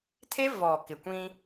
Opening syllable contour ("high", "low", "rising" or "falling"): high